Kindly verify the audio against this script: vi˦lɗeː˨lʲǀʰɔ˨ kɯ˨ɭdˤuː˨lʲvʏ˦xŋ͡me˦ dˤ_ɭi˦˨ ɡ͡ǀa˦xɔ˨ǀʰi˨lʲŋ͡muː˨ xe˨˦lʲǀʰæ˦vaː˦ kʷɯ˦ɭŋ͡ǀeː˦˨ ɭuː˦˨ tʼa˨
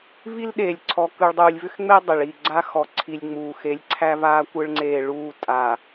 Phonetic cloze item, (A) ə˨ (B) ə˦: A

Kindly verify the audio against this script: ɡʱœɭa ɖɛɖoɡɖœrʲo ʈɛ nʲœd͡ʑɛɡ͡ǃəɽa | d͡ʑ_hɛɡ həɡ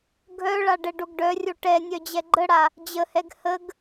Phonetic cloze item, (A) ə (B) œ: A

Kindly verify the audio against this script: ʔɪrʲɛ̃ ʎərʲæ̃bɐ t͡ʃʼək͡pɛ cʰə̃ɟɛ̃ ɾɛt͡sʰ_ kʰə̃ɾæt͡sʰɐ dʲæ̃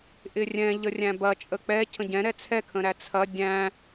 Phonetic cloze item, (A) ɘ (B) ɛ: B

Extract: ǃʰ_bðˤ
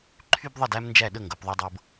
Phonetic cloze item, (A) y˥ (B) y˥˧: A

